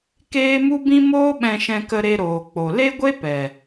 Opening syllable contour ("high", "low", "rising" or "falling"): high